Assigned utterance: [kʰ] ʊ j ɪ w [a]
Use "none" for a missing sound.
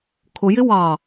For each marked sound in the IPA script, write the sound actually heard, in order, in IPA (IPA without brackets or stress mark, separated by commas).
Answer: kʰ, ɑ